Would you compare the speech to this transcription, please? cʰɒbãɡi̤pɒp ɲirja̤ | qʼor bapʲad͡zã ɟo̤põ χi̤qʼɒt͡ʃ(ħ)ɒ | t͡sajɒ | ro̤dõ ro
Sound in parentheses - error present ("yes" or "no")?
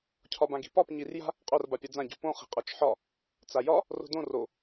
no